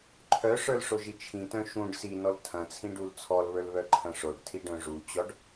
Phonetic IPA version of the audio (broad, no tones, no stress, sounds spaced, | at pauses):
ǃʰ œ ʂ ə˞ l ʂ o ʒ i t͡ʃʰ ĩ t œ̃ ʃ ũ ɖ s i n ɔ l tʰ ɐ̃ t͡sʰ ĩ ɖ u l t͡sʰ ɔ l β ə˞ l β œ ǃʰ ɐ̃ ʂ o ɖ tʰ i ɖ œ̃ ʐ u t͡ɕ ɔ ɖ